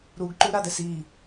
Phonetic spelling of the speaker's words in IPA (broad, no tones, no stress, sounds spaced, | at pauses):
ɾ u ɡ ǃ u ɾ a d ɛ s i